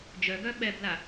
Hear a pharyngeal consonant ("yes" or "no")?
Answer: no